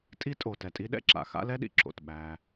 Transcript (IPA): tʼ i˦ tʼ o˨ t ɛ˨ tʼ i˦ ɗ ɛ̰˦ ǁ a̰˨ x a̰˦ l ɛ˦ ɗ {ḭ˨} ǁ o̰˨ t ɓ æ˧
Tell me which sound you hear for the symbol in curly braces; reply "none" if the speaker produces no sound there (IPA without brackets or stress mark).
ḭ˨